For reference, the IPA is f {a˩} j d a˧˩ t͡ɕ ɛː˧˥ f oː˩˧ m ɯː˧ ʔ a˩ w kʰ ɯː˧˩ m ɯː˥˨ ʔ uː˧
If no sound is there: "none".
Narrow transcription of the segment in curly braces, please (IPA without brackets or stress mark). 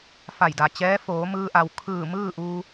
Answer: a˧˩